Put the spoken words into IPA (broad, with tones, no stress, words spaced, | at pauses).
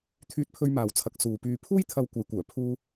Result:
t̪ʰyː˧t̚pʰɵ˧ɥmaː˨wt͡sʰɐ˨k̚ suː˨pyː˧ pʰuː˥jt̪ʰɐ˧w kʷɐ˨˧jkʷœː˨˩ pʰuː˧